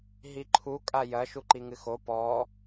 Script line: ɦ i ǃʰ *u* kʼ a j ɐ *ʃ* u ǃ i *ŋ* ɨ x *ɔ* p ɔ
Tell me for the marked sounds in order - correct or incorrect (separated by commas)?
correct, correct, correct, incorrect